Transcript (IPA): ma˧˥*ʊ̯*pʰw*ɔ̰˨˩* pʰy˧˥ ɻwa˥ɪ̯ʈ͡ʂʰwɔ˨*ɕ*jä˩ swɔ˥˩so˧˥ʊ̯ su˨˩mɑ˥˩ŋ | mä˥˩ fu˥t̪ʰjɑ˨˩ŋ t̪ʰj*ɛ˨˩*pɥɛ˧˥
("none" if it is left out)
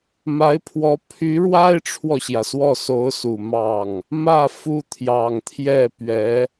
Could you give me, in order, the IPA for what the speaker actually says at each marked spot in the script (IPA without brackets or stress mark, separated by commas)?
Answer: ɪ̯, ɔ˧˥, ɕ, ɛ˥˩